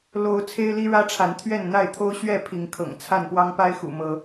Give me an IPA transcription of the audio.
l o˦ ʊ̯ t͡sʰ e˦ ɪ̯ l i˦ ɻ ä˦ ʈ͡ʂʰ a˨˦ n t̪ʰ ɥ ɛ˥˨ n n̪ a˥˨ ɪ̯ t̪ʰ o˦ ʊ̯ ɕ ɥ ɛ˥˨ pʰ i˨˦ ŋ kʰ ɤ̰˨˩ ŋ t͡sʰ a˥˨ n p w ɑ˦ ŋ p a˦ ɪ̯ x ṵ˨˩ m ɤ˨˦

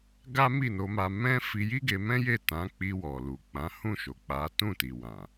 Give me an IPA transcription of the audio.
ɡ a˦ m i˦˨ n o˧ m a˧ m ɛ̃˦ f i˧ j i˦ ɡ e˧ m ɛ̃˦ j e˦˨ t ã˨˦ k͡p i˧ w ɔ˨ l u˨ k͡p ã˨˦ h ũ˦˨ ʃ o˨ k͡p a˨˦ t ũ˦˨ t i˨ w ã˨

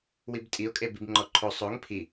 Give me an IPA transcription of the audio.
w i b tʼ i ʊ̯ kʼ e b i b ŋ͡ǃ ɔ ǃʰ o sˤ o ŋ pʰ i

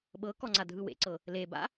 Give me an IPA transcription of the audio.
ɓ ɤ k ɔ ŋ͡ǀ a dʱ ɯ w ḛ ǀ ɤ | l e b a̰

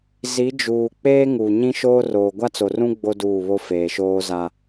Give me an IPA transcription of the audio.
z i˨˦ d͡ʒ uː˨ k͡p eː˦ ŋ u˨ ɲ ĩ˦ ʃ oː˦ r oː˨ ɡʷ a˦ t͡s o˨ r ũ˦ ɡ͡b o˦ d uː˦˨ β o˦ f eː˨ ʃ oː˦ z a˦

